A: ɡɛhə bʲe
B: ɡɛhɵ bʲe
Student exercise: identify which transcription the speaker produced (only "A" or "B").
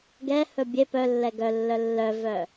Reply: B